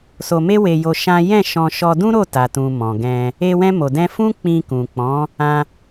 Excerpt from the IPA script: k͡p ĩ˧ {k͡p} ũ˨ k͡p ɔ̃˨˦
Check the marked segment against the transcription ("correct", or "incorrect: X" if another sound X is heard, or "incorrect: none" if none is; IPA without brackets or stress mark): incorrect: k